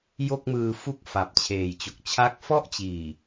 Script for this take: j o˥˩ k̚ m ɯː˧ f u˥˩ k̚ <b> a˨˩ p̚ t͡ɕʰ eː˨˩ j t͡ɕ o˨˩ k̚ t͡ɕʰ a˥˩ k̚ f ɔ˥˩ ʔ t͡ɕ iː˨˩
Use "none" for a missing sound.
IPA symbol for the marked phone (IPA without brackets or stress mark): f